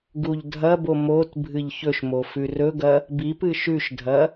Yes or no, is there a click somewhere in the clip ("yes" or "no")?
no